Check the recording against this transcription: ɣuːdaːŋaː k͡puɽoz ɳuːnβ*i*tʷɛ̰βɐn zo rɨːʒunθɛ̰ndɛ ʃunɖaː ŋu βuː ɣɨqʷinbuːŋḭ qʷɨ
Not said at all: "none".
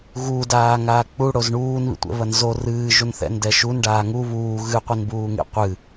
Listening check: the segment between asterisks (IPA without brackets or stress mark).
ḭ